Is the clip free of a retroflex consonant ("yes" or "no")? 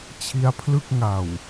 yes